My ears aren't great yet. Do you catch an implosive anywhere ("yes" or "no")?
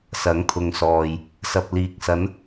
no